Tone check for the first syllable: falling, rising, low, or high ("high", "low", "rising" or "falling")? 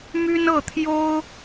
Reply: high